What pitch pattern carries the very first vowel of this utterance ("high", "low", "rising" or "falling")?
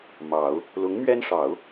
low